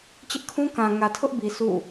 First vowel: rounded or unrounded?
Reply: unrounded